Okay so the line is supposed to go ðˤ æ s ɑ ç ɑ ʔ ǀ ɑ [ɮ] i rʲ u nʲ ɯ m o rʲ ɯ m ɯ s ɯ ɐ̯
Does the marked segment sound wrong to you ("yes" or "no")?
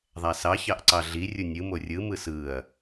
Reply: no